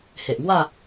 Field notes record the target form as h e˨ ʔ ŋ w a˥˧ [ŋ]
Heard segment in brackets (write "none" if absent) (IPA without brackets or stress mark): none